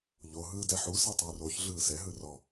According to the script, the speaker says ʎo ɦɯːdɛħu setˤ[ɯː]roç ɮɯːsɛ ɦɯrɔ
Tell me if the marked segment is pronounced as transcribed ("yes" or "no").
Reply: yes